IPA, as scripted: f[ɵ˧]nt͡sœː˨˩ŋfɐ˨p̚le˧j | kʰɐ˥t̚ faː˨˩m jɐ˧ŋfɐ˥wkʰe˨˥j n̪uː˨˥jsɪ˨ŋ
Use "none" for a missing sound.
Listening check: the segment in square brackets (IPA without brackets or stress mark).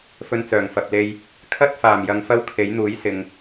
ɵ˧